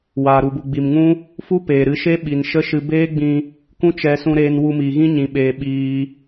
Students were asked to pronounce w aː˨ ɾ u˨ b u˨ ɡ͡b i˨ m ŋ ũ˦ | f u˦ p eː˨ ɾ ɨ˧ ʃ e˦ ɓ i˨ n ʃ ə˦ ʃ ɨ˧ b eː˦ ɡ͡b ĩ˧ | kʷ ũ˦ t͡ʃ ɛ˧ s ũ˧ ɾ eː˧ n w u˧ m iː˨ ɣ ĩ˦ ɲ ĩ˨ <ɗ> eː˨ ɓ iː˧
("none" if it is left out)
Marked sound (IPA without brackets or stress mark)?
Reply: ɓ